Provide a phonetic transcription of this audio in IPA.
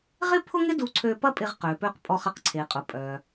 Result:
ʁ ɪ˥ pʰ ʊ˥ ŋ ɪ˥ d u˧ ǀʰ ø˧ p ɐ˥ pʼ ɪ˧ ʁ q ø˩ p ø˧ q pʼ ɔ˧ χ ɐ˩ q ǀʰ e˩ qʼ ʊ˩ pʼ œ˩

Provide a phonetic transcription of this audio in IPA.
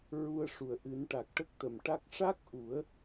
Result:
ɹ u˧ ə̯ ʂ u˨˩ ə̯ ʔ ɨ˨˩˦ n ʈ a˨˩ k̚ ʈ ə˦˥ k̚ t̪ ə˨˩˨ m ʈ a˦˥ k̚ ʂ a˦˥ k̚ ʔ u˨˩˦ ə̯

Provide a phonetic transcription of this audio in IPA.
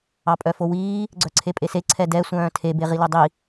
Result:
ɑ pʼ œ f o w iː | ɡ͡ǀ œ ǀʰ e pʼ e s e ǀʰ ɛ d ɛ sʷ œ̃ː tʰ e b e ʁ i l ɵ dˤ i

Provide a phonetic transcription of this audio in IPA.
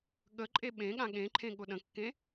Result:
ɠ ə ǃʼ e ɓ ẽ ɠ ã ɠ ẽ ǃʰ ẽ ɠ ʊ ɗ ə̃ kː ẽ

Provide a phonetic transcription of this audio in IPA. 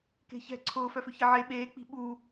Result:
k e̤ ç ɛ̤ ǀʰ ʊː f œ f ʏ ç ɪ ʕ e ɓ eː k͡p i̤ ɓ u

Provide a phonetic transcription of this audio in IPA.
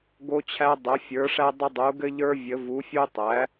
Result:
ɡ o˦ t͡ɕʰ æ˦ dˤ ɘ˩˥ fʲ ə˞˩˥ ʂ æ˦ dˤ ə˦ dˤ u˩˥ ɡ ɘ˦ ʎ ə˞˦ vʲ ə˩˥ v u˩˥ fʲ u˦ tˤ æ˩˥

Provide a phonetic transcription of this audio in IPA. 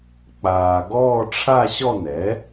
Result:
k͡p aː˧ ɡ ɔː˥˧ ʈ͡ʂʰ a˥˧ ɕ ɔ˥˧ n ɛ˩˥

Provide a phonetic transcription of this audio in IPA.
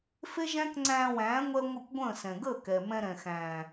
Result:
f e˦ ʒ æ̃˦ k ŋ͡ǀ æ̃ː˧ w æ̃ː˨˦ ŋʷ ɛ˦ ŋʷ ɪ˦˨ kʷ ɡʷ ə̃ː˦˨ s ɛ̃˨ ɡ əː˦˨ k ɛ˨ m ɛ̃˧ ɾ ɛ̃˨ x æ̃ː˨

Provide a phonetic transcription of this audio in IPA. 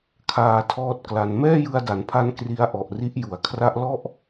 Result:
kʰ aː˧ tʰ ɔː˦˥ t̚ k l a˧ n m ɛː˥˩ j ɯ˧ a̯ d a˩˦ n pʰ a˧ n k r i˦˥ a̯ ʔ ɔ˨˩ ʔ r i˦˥ ʔ j u˩˦ a̯ kʰ r a˦˥ ʔ l ɔ˥˩ ʔ

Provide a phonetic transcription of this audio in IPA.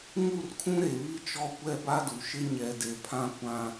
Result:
ŋ u˦˨ r kʰ ũ˦ ɾ e˨ β i˦ t͡ʃ ɔ˦ kʷ ɛ˦ b a˦ d u˨ ʃ ɪ˦ ɲ ɛ˨ d e˨ pʰ ã˦ kʷ ã˦

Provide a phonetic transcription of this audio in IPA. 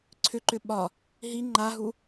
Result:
ǀʰ ʏ ǃ ʏ ɓ ɒ | ɦ i ŋ͡ǃ a ɦ u

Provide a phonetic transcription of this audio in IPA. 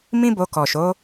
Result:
m ĩ˦ b o˧ k ɔ˨ ʃ o˨˦

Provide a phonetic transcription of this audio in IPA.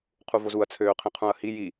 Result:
qʰ u v o z u ɐ̯ t͡sʰ øː qʰ ĩ qʰ ũ ɐ̯ h i j i

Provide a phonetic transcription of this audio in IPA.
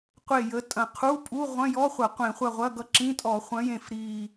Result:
qʷ e˦˨ j ə˨˥ tʼ ɐ̃˨˩ qʰ u˧˥˧ pʼ u˧˥˧ ʁʷ ɐ̃˧˥˧ j ɔ˧˥˧ χʷ ɐ˧˩˧ qʷ ẽ˧˩˧ χʷ ɐ˦˨ ʁʷ ɐ˧˥˧ ɡ ʌ˦˨ ǁ ĩ˧˥˧ tʼ ɔ˧˩˧ χʷ ɐ̃˨˥ j ẽ˨˩ f ɾ i˨˩

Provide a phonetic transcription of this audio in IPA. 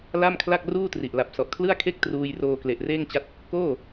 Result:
l a˥˩ m kʰ l a˥˩ k̚ r uː˥˩ t r i˨˩ ʔ l a˨˩ p̚ s ɔ˨˩ ʔ kʰ l ɯ˥˩ a̯ kʰ e˥˩ k̚ t r uː˧ j r oː˧ k l e˨˩ ʔ r eː˥˩ ŋ t͡ɕ a˦˥ t̚ | k oː˥˩

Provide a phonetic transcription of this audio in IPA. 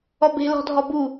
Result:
ɔ b e̤ l ɔ̤ dʱ ɔ b u

